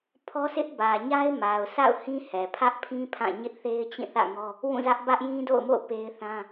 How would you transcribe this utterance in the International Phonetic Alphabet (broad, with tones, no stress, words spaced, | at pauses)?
pʰɔ˦sʰɪ˦ʔbä˨ ɲa˦ɪ̯ma˨ʊ̯sa̰˦˨ʊ̯ hĩ˦hɛ˨ pʰä˦ʔpʰĩ˦ pʰã˦˨ ɲɪ˦ʔθe˦ɪ̯t͡ɕĩ˦˨ θä̰˦˨ŋɔ˦ | wũ˦˨zä˦ʔ bä˦ʔjĩ˦do̰˦˨ʊ̯mo̰˦˨ʊ̯ pe˦ɪ̯θã˦